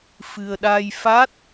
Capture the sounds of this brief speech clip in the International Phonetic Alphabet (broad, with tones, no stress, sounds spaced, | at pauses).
f ɨ˧ ə̯ ɗ aː˧ j f a˦˥ t̚